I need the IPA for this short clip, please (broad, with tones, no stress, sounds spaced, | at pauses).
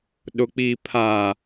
ɗ ʊ˨ k͡p i˨ pʰ a˨